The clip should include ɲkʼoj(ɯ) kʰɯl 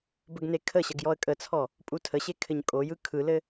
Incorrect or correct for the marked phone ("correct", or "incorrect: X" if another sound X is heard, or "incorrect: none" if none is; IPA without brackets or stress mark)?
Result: correct